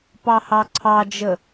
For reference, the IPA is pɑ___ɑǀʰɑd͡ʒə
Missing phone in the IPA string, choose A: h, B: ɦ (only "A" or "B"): A